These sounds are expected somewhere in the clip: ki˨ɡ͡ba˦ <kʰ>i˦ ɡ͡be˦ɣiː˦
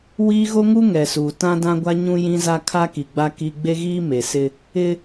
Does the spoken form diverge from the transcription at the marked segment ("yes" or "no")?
yes